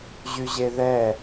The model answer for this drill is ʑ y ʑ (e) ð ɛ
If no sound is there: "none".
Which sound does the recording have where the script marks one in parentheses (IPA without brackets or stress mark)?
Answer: e